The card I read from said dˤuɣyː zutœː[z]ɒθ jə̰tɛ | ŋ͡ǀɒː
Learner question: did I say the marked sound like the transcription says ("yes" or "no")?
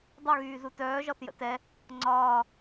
no